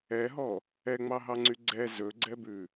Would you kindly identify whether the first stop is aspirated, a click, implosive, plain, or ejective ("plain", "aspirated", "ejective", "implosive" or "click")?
click